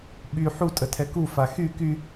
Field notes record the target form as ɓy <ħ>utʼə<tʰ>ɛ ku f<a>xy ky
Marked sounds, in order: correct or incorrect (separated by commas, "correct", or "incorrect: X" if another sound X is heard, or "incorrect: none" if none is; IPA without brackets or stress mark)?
correct, correct, correct